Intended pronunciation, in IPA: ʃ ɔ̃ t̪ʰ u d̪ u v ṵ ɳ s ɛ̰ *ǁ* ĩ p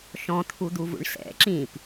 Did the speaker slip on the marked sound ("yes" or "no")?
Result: no